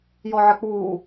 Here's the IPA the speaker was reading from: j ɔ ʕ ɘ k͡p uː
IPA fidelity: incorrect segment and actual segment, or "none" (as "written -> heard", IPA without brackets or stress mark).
none